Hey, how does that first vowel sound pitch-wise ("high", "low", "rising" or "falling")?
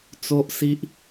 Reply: high